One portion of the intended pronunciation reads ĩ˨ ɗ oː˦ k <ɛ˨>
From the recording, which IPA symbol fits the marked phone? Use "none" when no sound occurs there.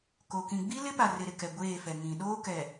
ɛ˨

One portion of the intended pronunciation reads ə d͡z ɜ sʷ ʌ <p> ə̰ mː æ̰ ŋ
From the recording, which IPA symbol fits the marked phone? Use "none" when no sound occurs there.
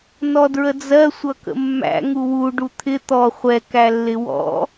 k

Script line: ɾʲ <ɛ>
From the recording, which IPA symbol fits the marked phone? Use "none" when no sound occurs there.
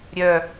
œ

